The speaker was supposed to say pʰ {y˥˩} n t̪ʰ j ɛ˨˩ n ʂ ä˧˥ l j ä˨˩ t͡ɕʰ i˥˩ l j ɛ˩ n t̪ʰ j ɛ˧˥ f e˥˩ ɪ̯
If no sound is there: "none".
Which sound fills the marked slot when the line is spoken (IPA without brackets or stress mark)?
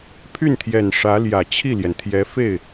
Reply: y˥˩